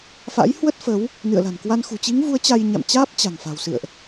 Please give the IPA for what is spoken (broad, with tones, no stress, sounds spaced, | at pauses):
f a̰˧˥ j h w ə˦˥ t̚ f ə˨˦ w | n ɨ̰˧˨ ə̯ l a̤˨˩ n k w a˧ n x ṳ˨˩ t͡ɕ i˨˦ ŋ v u˨˦ ə̯ t͡ɕ a˧ j ɲ a̰˧˨ m t͡ɕ aː˦˥ p̚ t͡ɕ a̤˨˩ ŋ f a̤˨˩ w s ɨ̰˧˨ ə̯ ʔ